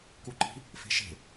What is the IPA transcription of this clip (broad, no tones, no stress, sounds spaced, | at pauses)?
k u ǃ i̤ | f e̤ ʃ e̤